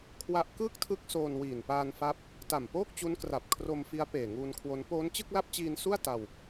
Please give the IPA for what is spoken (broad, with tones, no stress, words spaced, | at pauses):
kʰwa˦˥ʔ kɯː˥˩k̚tʰɯ˦˥k̚ soː˧n wiː˨˩n paː˧nfa˦˥p̚ | ta˨˩mpoː˥˩k̚t͡ɕu˦˥nkra˨˩p̚ kʰro˧mfi˦˥a̯ peː˨˩ŋuː˧nkʰwo˦˥n poː˦˥nt͡ɕɯ˥˩k̚la˥˩p̚t͡ɕiː˧n su˥˩a̯ ta˧w